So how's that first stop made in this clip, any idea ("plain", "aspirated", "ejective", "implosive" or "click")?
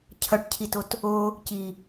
aspirated